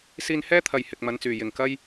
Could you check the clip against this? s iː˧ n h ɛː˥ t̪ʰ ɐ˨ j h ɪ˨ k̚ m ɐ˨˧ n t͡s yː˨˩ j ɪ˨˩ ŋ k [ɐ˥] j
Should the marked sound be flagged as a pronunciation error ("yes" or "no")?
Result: no